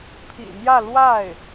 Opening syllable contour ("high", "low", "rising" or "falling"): low